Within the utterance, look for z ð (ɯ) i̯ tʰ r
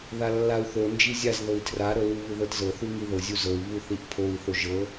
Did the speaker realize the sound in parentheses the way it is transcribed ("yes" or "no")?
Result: no